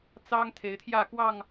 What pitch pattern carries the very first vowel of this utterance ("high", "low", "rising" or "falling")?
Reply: high